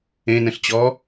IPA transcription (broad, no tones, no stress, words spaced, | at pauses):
ẽnə̃ɬt͡ɕɔ